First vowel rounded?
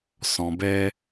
yes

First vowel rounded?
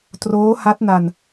yes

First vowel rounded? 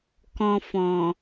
yes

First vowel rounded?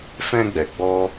no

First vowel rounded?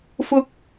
yes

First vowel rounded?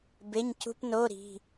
no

